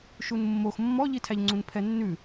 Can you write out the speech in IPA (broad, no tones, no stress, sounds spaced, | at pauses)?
ʃ u n mː o x mː ɔ ʎ i tʰ æ ʎ ŋ͡ǀ ũ n pʰ ɛ nː ʉ